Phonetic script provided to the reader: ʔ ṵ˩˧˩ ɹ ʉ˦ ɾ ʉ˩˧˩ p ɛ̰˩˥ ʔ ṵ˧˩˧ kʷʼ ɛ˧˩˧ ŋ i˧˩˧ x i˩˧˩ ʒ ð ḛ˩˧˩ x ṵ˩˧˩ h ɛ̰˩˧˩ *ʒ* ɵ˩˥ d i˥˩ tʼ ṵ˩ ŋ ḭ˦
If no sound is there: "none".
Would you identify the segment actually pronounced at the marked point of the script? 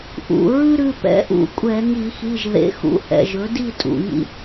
ʒ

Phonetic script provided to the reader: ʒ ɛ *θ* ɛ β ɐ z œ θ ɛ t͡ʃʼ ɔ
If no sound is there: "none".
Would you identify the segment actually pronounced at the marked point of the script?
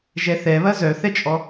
θ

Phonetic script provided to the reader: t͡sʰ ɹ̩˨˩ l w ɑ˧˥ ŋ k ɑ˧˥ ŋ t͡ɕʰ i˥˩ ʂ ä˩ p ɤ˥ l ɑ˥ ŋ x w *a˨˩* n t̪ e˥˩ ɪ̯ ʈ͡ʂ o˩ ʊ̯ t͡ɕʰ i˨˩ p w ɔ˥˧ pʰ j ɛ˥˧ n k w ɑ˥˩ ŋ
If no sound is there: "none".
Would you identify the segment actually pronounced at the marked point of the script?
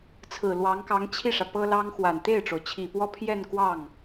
a˨˩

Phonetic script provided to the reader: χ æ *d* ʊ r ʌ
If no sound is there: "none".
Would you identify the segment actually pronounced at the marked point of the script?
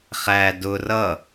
d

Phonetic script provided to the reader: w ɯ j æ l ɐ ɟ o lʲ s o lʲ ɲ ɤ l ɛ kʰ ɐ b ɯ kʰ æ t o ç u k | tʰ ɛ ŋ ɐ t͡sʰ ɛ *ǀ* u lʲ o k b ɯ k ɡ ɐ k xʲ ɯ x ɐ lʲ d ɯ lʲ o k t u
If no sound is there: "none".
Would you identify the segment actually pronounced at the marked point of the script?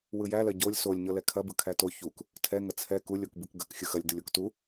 k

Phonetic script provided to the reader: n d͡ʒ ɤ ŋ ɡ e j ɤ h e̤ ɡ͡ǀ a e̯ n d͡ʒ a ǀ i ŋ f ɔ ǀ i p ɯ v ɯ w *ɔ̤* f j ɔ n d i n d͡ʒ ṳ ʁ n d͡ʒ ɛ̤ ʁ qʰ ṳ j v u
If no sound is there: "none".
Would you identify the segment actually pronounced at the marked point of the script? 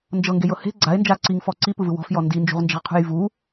ɔ̤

